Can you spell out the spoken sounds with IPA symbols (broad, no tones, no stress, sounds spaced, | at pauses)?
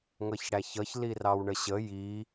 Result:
ŋ ʌ ç ɽ æ ç ʌ ç l i r ɑ w ɳ ə ɕ ə j i